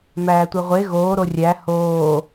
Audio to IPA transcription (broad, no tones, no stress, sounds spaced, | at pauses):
m æː tʷ e ʁʷ e ɣ oː ɾ o rʲ æ h oː